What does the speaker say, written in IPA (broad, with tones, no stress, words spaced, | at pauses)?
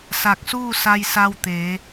sa˧˩k̚suː˥˨sa˧j sa˧wt̪eː˩˧